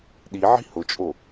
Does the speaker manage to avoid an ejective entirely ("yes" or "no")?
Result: no